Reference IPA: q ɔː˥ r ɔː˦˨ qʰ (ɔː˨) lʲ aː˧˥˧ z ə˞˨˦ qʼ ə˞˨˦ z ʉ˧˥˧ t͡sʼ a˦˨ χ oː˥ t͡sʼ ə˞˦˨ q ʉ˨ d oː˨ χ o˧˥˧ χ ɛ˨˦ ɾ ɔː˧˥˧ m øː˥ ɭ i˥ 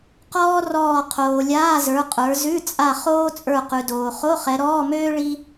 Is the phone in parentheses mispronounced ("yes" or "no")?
yes